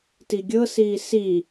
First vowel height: high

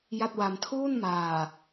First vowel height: low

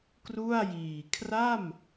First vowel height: high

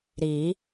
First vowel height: high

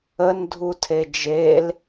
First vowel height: mid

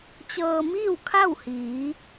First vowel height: mid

